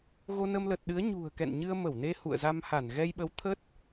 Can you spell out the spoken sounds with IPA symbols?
ɣ o˧ n ə˧ m l ə˨˩ t̚ ɗ ɨ˨˦ ə̯ ɲ ṳ˨˩ ə̯ k ɛ̰˧˨ n ɲ ɨ˧ ə̯ m ə˧˩ w n e˧ h ṵ˧˨ ə̯ z a˧ m h a˧˩ n ɣ ɛ˧ j ɓ ə˨˦ w t̪ʰ ə˦˥ t̚

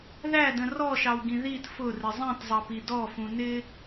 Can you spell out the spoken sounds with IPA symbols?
ð æ d ə̃ r ɔ ʃ ɑ w ɡ ĩ ð i t f ʊ r ɪ zˤ ĩ t zˤ ʌ p i d ɔ f ũ n ɪ

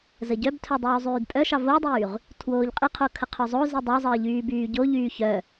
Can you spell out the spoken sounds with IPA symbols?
z ə ɟ œ b tʰ œ dˤ yː zˤ yː d pʼ œ ʃ ɑ v o dˤ yː ʁ | tʰ w oː ʎ qʼ i qʰ o kʰ ə qʰ œ zˤ o z i dˤ ɑ zˤ əː ʎ yː b yː ɟ o ʎ yː ç œ

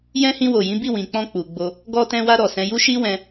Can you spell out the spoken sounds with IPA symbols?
j ɛ̃˧ h ĩ˧ w o˨ j ĩ˨˦ b i˦˨ w ĩ˨ k͡p ɔ̃˧ k͡p u˨ ɡ͡b o˧ | ɡ ɔ˧ t ɛ̃˧ w a˧ ɾ ɔ˨ s ɛ̃˨˦ j u˦ ʃ i˦ w ɛ̃˧

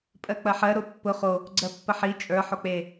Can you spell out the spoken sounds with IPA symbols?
pʼ ɜ k͡p ɐ ħ ɜ ɾ o pː ʊ χ o | ɡ͡ǀ ɜ pː ə ħ i t͡ʃʼ ə˞ ħ o k͡p e

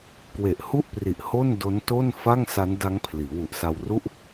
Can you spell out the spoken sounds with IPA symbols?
k w e˨˩ ʔ h u˥˩ ʔ p r i˨˩ ʔ h o˥˩ n d o˦˥ n t o˥˩ n f a˥˩ ŋ s a˦˥ n d a˦˥ ŋ pʰ l iː˩˦ w u˨˩ ʔ s a˧ w r u˥˩ ʔ

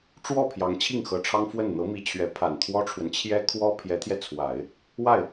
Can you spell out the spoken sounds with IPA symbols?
ʈ͡ʂ w ɔ˥˩ pʰ j ɑ˧˥ ŋ t͡ɕʰ i˥˩ ŋ x ɤ˧˥ ʈ͡ʂʰ ɑ˥ ŋ f w ə˥˩ n n̪ ɤ˧˥ m i˧˥ t͡ɕʰ ɥ ɛ˧˥ pʰ a˨˩ n t̪ʰ w ɔ˥ ʈ͡ʂʰ w ə˨ n t͡ɕʰ j ɛ˥ kʰ w ɔ˥ pʰ j ɛ˧˥ t̪ʰ j ɛ˧ t͡sʰ w a˨˩˦ ɪ̯ | w a˥˩ ɪ̯

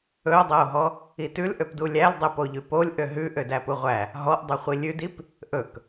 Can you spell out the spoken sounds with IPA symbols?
ɵ o̯ dˤ æ o̯ ɦ ɔ | i t ʉ l ʔ ø p d u lʲ æ l dˤ ɛ p o ʎ ʉ p o lʲ ʔ ø ɦ ʉ ʔ ø d æ p u ʁʷ æ | ɦ ɔ ʔ dˤ u χʷ i lʲ ʉ d i p | ʔ ɵ k

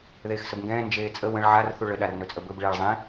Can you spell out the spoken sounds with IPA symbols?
ð eː x s ə b ŋ ɡ ɛ̃ː n d͡ʒ eː t͡sʼ ə w ə̃ ɭ ʕ a r θ u ɭ ə ɗ a r n ɵ t͡sʼ ə b ɵ b ɭ eː ɭ zˤ ẽ

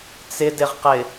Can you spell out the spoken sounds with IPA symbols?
t͡s ɪ d ɪ ʁ q ɪ

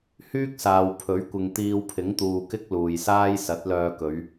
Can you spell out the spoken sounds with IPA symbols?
h yː˥ k̚ s aː˨ w pʰ ɵ˨˥ ɥ kʷ ɪ˨ ŋ t̪ iː˧ w pʰ ɪ˨˥ ŋ t̪ uː˨ k ɪ˥ k̚ l uː˨ j s aː˥ j s ɐ˨˥ t̚ l œː˧ k ɵ˨˧ ɥ

